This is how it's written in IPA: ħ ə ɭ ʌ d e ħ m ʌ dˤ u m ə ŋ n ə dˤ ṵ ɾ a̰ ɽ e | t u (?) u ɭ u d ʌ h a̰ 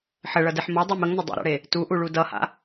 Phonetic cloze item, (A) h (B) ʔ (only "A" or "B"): B